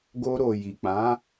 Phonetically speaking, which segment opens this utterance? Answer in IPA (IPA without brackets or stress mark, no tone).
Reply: ɡ